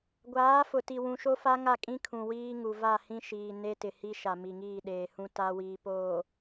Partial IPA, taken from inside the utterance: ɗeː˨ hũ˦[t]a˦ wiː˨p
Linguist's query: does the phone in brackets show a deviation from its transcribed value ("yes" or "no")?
no